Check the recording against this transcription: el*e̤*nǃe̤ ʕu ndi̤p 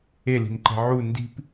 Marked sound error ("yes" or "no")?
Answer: yes